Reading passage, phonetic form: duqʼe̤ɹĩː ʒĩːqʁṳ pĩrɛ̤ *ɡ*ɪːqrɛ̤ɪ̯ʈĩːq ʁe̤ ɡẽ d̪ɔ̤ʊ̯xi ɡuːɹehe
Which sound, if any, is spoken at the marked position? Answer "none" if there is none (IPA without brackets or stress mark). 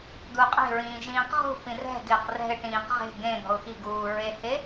ɡ